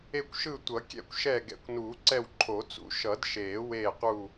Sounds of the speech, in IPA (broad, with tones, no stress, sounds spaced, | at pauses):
e˦˨ kʷ ʃ ɯ˦˨ tʷ ʌ˨˩˦ kʲ ɛ̰˦˨ kʷ ʃ ɛ˦˨ ɡ ɛ̰˨˩˦ kʷ n uː˨˩˦ ǀ ɛ˦˨ w ǃʰ o˨˩˦ t͡s ṵ˨˩˦ ʃ ʌ˨˩˦ d ʃ eː˨˩˦ w eː˦˨ q u˦˨